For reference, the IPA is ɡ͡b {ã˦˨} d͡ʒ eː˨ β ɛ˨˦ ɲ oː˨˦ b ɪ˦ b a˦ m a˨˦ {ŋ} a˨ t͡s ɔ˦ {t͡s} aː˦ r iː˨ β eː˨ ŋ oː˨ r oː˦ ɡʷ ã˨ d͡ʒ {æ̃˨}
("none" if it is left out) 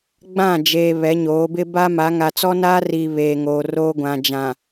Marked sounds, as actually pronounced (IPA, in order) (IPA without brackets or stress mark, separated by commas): ã˦˨, ŋ, n, ã˨